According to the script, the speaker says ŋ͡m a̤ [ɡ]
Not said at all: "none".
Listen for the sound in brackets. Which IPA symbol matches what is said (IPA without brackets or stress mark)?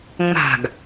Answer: ɡ